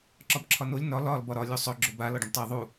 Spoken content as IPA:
ǁ ɒ b ǁʰ ɒ n o lʲ n ɒ l ɒ l b ɒ ɾ ɒ lʲ u sˤ ɵ ɡ͡ǁ o b a l ɒ ɖ ə̃ b tˤ a ðˤ u

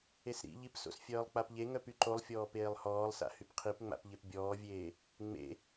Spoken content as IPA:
e s ɾ ḭ ʎ i p s o̰ s fʲ œː lˠ k͡p a p ʎ e ŋ œ p y ǃ o lˠ fʲ ɔː p eː lˠ h ɔː lˠ s a̰ h y p qʰ i p ŋ͡m a̰ p ʎ e p bʲ ɔː vʲ eː | ŋ͡m ḛ

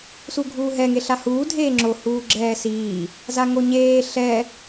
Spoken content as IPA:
s u ɡʱ uː ɦ ɛ ŋ e ɬ a h uː dʱ eː ŋ͡ǁ o h uː ɡ͡ǁ ɛː s iː | z a ŋ o ɲ eː ɬ ɛ

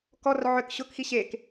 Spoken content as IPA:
k ɔ r ʕ ʏ k ɕ ʊ k x i ɕ e k

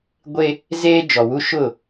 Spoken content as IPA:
ɡʷ e˦ | z eː˦ d͡ʒ ɔ˨ w u˦ ʃ ʊ˦˨

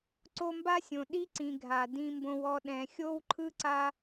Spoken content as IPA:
ǀ o˦ m b a˥ sʲ õ˨ ɗ i˥ ǀ ĩ˨ ɡʱ a˩ d ĩ˦ m b õ˦ w ɔ˦ ɗ ɛ̃˨ xʲ o˥ w ǃʰ ɯ˥ ǀ a˦

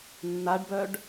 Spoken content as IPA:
nː a ɖ b œ ɖ

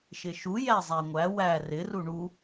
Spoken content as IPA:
ʃ ɪ ʃ u j æ zˤ æ ŋʷ æ w æ r ɪ r u ɳ u

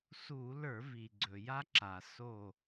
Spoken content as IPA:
s u˧˩˧ l ə˞˧˩˧ v i˩ ɡ͡ǀ ɵ˩ j a˦ ǁ a˩ s o˧˩

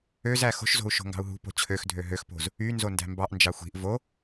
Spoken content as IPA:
ø z æ x o̤ ʃ z o̤ u̯ ʃ o̤ ŋ ɡ ɑ̤ u̯ ɦ ṳ p o̤ t͡ɕʰ ø x dʱ ø ɦ ø x p o̤ z | y n z o n d æ̤ m b ɑ ʔ n d͡ʒ ɑ xʷ i̤ ʔ v o

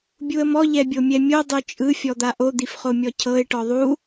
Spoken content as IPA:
bʲ u ə̯ m ɔ ʎ ɛ bʲ o mʲ ɛ mʲ o dˤ o t͡ʃʼ ɯ fʲ ɔ d̪ a ʔ o d̪ i f χ o mʲ ɔ cʰ ɤ ɪ̯ ʈ ɔ ðˤ u

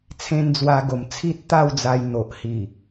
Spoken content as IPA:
t͡sʰ ẽ˧ n d͡z w a˧ ɡ o˨˩ m t͡sʰ i˦ t̚ t̪ a˥˧ w d͡z a˧ j n̪ o˨ ʔ h i˨˩

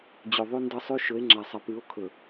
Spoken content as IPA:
d͡ʑ ʉ˨ ðˤ ʉ˦ n d ʌ˦ sˤ ʉ˦ ʃ ɵ˨˦ e̯ ŋ͡ǁ a˨ sˤ ʌ˨ p ʉ˨˦ o̯ kʰ ɵ˨

